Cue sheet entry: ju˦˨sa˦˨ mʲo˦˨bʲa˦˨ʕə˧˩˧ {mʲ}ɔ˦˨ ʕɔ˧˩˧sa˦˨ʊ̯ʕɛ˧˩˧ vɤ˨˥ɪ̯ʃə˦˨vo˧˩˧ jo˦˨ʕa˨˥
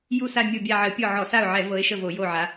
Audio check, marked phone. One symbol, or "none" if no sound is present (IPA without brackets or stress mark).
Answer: pʲ